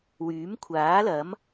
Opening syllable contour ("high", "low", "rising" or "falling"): rising